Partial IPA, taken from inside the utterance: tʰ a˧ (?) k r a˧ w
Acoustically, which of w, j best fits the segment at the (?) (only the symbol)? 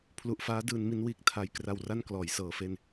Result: j